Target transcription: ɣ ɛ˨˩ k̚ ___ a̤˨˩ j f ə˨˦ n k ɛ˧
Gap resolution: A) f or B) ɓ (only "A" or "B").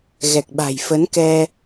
B